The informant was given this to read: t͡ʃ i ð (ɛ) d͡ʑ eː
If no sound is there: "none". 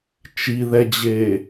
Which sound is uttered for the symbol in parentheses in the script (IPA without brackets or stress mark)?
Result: ɛ